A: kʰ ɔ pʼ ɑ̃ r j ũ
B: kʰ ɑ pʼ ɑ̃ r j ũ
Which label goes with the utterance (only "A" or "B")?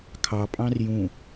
B